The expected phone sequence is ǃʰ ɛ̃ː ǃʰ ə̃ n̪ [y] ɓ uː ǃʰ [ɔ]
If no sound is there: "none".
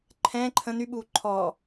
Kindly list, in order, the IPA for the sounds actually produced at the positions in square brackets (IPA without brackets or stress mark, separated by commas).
y, ɔː